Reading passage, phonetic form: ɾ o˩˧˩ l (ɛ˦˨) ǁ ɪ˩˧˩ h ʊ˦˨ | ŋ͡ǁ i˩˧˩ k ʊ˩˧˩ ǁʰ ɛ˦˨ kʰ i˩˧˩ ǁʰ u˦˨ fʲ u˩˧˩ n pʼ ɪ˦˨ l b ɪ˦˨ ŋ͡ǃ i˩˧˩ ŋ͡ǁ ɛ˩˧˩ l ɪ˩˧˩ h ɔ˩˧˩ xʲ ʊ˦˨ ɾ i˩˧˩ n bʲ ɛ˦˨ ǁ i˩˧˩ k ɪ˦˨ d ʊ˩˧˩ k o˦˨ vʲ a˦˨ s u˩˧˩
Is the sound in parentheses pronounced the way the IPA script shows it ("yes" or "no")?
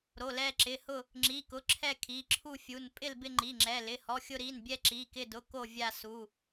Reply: yes